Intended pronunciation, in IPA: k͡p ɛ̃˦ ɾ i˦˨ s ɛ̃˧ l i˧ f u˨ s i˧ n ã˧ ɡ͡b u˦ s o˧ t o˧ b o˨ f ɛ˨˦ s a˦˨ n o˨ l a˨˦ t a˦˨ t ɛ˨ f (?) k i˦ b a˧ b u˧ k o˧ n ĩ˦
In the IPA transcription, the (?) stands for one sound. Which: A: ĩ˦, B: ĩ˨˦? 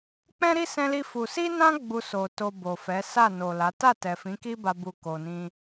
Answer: B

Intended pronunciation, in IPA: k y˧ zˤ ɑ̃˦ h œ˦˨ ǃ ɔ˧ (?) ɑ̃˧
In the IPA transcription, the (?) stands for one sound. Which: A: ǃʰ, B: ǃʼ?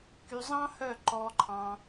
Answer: A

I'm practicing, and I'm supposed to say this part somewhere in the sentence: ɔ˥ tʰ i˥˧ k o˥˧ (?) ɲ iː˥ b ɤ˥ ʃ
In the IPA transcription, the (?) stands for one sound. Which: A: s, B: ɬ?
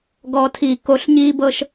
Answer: B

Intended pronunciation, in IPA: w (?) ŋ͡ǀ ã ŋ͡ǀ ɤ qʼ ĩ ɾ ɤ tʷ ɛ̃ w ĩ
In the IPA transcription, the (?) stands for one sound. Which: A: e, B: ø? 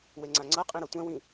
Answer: A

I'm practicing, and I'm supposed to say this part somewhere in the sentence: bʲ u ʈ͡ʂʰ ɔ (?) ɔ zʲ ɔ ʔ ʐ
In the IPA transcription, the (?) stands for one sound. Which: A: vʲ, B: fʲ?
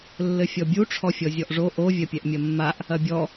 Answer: B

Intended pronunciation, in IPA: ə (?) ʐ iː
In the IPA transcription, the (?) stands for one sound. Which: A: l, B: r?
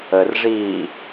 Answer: B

